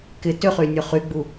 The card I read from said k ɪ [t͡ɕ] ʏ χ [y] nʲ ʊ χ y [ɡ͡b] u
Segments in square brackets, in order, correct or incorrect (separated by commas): incorrect, correct, correct